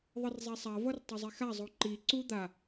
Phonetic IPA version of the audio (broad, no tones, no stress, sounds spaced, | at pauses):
ðˤ ɯ r zˤ ɛ sˤ a v ʌ r tˤ ʌ zˤ e x a zˤ o ǃ i ǀ u d̪ a